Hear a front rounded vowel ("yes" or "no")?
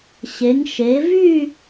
yes